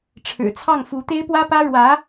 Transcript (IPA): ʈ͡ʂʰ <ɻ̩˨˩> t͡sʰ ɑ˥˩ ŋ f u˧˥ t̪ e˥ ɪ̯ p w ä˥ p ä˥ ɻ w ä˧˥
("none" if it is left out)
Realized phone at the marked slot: ɻ̩˨˩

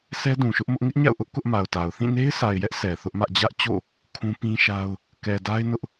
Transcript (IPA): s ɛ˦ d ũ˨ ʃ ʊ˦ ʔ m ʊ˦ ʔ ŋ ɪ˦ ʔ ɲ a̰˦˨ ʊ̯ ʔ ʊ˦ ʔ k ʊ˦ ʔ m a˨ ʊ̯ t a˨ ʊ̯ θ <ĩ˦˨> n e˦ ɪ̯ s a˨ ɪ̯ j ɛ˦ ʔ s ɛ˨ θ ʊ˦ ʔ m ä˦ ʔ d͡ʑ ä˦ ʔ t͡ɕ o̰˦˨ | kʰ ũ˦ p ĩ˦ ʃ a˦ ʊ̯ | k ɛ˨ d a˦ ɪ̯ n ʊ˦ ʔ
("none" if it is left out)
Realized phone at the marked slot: ĩ˦˨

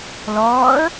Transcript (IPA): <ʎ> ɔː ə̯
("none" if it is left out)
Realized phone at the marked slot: l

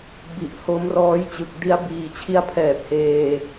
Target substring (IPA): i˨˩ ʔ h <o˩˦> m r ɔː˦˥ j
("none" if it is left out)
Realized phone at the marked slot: o˦˥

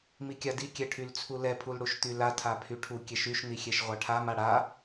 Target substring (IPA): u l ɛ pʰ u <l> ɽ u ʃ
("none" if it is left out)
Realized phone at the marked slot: l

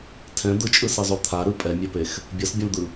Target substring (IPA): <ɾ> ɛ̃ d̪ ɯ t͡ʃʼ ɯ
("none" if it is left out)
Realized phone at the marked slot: tʰ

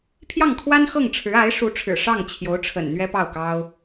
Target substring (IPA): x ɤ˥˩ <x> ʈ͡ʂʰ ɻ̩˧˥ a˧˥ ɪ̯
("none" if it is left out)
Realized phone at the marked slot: ŋ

